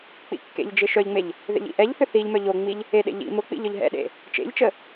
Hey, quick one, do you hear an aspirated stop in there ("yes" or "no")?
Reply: no